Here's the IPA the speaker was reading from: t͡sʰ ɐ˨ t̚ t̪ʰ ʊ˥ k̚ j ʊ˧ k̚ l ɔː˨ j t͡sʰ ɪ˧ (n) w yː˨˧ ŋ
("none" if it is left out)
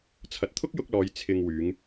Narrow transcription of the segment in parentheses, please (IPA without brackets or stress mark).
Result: ŋ